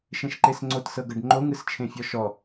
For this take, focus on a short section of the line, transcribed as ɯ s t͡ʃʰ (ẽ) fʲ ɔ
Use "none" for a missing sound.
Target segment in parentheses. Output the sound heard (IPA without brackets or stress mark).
ẽ